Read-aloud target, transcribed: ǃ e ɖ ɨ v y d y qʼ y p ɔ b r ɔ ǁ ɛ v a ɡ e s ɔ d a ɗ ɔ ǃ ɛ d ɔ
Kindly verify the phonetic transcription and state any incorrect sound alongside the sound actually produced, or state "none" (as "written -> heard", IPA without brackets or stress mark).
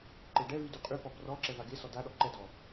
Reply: ɨ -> ɛ